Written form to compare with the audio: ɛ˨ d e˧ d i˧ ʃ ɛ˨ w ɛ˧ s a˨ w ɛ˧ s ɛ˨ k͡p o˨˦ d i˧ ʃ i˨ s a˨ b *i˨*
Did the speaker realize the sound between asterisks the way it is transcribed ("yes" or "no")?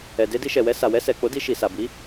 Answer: no